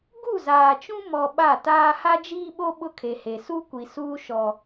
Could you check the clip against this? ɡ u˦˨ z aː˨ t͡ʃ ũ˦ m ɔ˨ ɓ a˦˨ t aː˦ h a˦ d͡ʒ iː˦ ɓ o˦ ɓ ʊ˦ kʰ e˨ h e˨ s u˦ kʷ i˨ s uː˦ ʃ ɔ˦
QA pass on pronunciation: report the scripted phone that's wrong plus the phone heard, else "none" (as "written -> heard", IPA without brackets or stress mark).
none